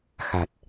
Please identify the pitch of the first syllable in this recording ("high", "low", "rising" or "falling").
low